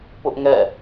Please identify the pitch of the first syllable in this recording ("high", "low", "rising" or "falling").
high